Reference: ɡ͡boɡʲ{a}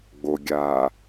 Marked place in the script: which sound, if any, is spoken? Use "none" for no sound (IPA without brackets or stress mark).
aː